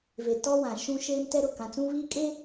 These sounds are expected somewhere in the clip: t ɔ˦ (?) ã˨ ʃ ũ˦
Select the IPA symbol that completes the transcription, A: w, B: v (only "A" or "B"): A